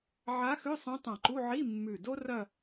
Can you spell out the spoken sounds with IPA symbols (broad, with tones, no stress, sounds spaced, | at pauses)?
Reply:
ʕ a˧˥ x ʉ˧˥˧ sˤ õ˧˥ tˤ ã˧˩ ǃ u˧˥˧ ʕ i˧˥˧ mː ʉ˧˩ d o˥ r ɐ˥˧